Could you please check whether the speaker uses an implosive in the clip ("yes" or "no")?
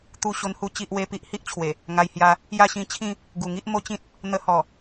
no